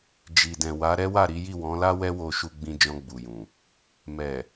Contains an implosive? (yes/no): no